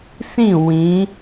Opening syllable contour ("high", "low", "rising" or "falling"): falling